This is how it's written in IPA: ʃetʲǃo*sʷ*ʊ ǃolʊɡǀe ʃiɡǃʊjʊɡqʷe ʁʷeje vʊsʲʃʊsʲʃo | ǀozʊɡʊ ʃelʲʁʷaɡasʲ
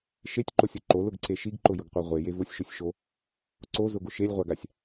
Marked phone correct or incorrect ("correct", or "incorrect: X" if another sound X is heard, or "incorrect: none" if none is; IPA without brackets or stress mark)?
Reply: incorrect: sʲ